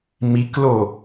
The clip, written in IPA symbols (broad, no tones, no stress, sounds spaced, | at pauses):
m i k l o